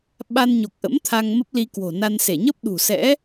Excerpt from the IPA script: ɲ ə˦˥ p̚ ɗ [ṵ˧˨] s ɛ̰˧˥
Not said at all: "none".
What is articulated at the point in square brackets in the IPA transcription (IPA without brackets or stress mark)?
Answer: ṳ˨˩